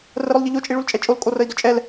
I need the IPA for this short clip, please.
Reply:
r ə ɾ ʊ lˠ ʎ ə ʎ o t͡ʃʼ i ɭ u l t͡ʃʼ ɛ t͡ʃʼ o l kʼ o r ə i̯ d ʊ t͡ʃʼ ɛ l

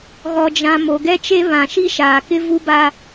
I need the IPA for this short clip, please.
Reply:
ɣ ɔ˨ d͡ʒ ã˨ m o˨ ɡ ɛ˦ t͡ʃ e˦ β ã˨ ʃ i˦ ʃ aː˨ k ɪ˦ v u˦ b a˦

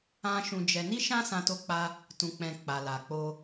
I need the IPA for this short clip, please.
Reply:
ã˦ ʃ ũ˧ d͡ʒ ɛ˧ n i˦ ʃ ã˦ s ã˧ t o˦ k͡p a˦ | t ũ˨ k͡p ɛ̃˨ k͡p a˨ l a˨ k͡p o˧

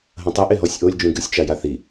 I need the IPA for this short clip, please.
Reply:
ɦ ɐ̃ tˤ ɨ ʔ e ɦ ɔ sʲ ʔ o lʲ d͡ʒ ũ ɡ ɨ sʲ t͡ʃ a j a θ i

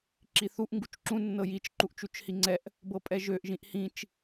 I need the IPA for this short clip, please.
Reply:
ǁ i θ u ʔ ŋ ɡ u t͡ʃ ǁ ũ nː ɤ j i t͡ʃ ǃ u ʔ t͡ʃ u t͡ʃ h i ŋ͡ǀ ɛ ʔ | b ɤ pʼ ɛ ʒ ø ʔ ʒ ĩ ʔ h ĩ t͡ʃ

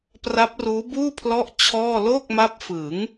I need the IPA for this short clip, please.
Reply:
p r a˦˥ p̚ r uː˦˥ b uː˥˩ pʰ l ɔ˦˥ ʔ t͡ɕʰ ɔː˥˩ l oː˥˩ k̚ m a˦˥ p̚ f ɯ˩˦ ŋ

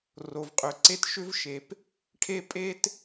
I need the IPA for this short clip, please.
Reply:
r o˩ v qʼ ʏ˩ ǀ e˥ t ʃ ʏ˥ v ʃ e˩ p | ʈʰ e˥ pʼ e˥ t

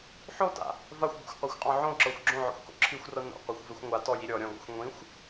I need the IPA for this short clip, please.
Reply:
ħ o t a̰ | v a xʷ b o̰ xʷ qʷ a xʷ qʼ ɔ̃ ʕ õ ǁ ɤ xʷ ɡ͡ǁ õ ʕ ɔ̰ xʷ k o̰ ǁʰ i xʷ r ɤ n o̰ qʷ i xʷ v e xʷ ŋʷ a t ɔ j i ɾʲ ɔ ɾʲ ɔ̃ ɡ ɔ̰ xʷ ŋʷ ĩ xʷ

